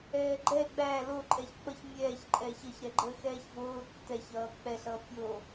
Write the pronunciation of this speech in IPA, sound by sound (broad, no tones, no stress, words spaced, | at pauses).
ɛːɡ͡ǃɛ ɡ͡bæ loǃʼɛç k͡pʌçmʲɛːçǃʼɛːç ʌçɾɛɡ͡ǃəː xɛːçvoː tːɛçʌː k͡pɛɬʌː pʲoː